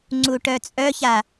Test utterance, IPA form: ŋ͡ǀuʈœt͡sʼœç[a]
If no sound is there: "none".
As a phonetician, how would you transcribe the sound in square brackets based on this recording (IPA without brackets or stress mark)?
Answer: a